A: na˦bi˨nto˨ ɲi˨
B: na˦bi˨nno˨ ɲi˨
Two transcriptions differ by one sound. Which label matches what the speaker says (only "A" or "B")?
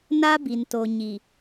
A